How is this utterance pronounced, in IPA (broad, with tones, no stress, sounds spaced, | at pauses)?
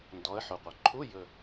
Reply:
n d ɔ˩˥ ə̯ ħ o˩ qʷ ɐ˩ ǃʰ u˧˥˧ j ɵ˧˩